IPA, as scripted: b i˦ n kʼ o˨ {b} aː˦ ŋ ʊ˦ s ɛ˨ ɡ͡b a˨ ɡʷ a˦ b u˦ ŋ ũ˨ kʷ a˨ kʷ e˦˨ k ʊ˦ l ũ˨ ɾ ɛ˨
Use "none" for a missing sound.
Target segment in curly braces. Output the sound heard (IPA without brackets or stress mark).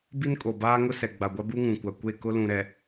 b